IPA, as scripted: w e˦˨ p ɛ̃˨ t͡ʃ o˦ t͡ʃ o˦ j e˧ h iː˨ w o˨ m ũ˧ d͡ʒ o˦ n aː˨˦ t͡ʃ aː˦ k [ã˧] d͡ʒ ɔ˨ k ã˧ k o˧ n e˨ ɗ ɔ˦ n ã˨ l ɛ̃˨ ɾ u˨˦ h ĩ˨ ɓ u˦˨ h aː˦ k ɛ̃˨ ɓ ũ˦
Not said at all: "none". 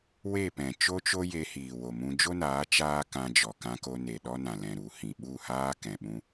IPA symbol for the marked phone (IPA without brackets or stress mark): ã˧